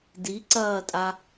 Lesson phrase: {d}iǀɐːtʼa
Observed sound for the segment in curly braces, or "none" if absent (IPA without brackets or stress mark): d